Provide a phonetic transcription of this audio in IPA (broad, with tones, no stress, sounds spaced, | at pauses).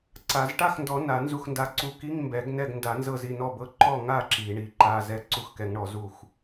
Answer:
ǀ a˨˩˦ z ʈ a˥˩ x n d ɔ˨˩˦ n a˨˩˦ n z u˥˩ x n d a˧˥˧ ǀ u˧˥˧ k i˧˥˧ ŋ m b ɛ˨˩˦ ɡ n ɛ˥˩ ɡ n d a˨˩˦ n z ɤ˥˩ z i˥˩ n ɔ˥˩ b ɤ˧˥˧ ǃ ɔ˥˩ ŋ a˥˩ ǁ i˨˩˦ ɳ i˨˩˦ ǃ a˧˥˧ z ɛ˧˥˧ ǀ u˧˥˧ x k ɛ˨˩˦ ŋ ɳ ɔ˨˩˦ z u˥˩ x